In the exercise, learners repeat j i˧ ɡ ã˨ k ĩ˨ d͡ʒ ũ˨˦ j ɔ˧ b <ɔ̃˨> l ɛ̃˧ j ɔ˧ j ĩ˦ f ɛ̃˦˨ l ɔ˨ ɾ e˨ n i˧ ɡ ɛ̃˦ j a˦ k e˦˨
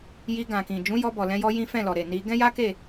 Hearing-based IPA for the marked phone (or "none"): ɔ˨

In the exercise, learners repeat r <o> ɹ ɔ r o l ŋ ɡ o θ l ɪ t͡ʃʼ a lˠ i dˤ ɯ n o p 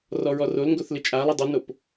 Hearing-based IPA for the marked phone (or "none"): ɔ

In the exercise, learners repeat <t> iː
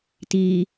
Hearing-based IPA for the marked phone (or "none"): t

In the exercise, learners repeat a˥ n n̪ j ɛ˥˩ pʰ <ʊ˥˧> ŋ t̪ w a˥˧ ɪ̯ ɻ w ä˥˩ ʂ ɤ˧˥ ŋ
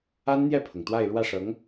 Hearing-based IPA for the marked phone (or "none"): ʊ˩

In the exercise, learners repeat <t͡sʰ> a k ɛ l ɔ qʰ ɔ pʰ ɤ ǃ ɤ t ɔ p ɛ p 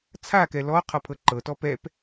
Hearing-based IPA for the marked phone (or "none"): t͡sʰ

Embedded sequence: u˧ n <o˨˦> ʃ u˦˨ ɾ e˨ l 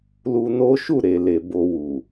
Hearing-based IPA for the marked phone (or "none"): o˦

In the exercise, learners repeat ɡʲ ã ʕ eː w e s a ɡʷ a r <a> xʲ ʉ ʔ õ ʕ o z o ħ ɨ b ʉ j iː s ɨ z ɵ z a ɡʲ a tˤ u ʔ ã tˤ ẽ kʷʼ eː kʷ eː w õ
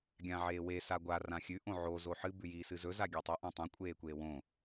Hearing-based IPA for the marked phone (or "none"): ã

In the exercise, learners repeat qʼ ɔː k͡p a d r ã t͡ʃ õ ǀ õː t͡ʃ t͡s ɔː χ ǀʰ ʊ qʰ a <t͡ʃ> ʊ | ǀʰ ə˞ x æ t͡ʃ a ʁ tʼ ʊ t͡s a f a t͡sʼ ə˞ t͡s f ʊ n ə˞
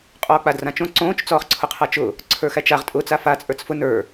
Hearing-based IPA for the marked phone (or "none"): t͡ʃ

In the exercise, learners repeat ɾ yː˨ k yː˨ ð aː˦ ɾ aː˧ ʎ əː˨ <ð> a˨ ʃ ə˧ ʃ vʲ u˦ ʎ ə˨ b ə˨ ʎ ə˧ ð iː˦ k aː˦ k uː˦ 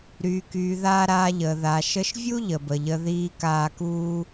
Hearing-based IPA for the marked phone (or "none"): ð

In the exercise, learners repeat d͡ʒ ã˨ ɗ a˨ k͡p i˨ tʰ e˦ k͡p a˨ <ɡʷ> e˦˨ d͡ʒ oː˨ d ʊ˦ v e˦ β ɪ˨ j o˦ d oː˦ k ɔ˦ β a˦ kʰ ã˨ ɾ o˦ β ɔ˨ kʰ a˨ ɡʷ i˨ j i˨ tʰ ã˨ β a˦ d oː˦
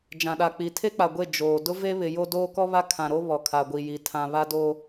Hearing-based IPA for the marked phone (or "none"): ɡʷ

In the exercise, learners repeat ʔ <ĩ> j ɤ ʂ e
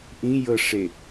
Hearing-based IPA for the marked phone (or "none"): ĩ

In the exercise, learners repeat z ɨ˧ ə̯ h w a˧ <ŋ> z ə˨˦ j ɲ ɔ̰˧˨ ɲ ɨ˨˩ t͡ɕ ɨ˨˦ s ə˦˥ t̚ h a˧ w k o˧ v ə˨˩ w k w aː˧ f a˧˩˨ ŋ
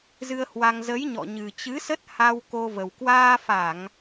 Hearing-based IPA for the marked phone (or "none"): ŋ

